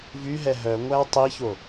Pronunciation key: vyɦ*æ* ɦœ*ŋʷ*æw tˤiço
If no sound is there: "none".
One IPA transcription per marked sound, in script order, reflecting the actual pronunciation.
ɛ, ŋʷ

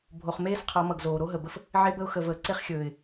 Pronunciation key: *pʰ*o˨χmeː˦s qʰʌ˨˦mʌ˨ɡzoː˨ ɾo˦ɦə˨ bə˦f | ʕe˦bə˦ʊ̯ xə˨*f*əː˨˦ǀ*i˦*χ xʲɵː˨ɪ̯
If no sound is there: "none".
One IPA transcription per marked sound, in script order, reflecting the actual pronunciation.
bʱ, v, e˦

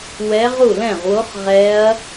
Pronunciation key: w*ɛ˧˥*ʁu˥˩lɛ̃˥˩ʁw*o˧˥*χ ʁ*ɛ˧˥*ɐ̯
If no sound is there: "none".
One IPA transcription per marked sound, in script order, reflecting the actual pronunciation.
ɛ˧˥, o˧˥, ɛ˧˥

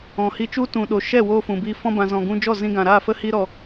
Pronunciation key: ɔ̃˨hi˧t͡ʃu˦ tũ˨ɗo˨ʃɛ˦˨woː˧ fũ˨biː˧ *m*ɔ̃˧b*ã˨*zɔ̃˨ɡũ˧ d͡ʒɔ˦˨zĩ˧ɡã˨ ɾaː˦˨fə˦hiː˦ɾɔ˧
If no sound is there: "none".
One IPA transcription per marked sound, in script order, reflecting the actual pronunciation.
f, ã˨

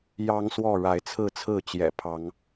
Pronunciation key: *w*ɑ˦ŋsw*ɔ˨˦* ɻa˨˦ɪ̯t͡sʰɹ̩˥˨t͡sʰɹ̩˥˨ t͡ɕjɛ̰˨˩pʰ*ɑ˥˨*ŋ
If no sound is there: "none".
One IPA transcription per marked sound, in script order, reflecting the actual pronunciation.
j, ɔ˥˨, ɑ˨˦

